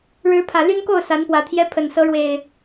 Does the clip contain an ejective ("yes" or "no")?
no